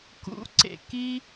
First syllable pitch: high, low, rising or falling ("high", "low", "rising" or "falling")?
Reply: rising